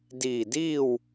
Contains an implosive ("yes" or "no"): no